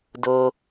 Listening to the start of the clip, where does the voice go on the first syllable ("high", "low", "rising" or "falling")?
low